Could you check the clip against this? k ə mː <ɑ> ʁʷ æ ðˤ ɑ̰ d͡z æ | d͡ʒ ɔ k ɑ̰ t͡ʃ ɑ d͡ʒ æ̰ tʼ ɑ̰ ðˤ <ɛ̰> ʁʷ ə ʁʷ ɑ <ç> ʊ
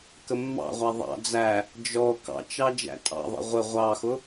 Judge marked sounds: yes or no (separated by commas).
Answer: no, yes, no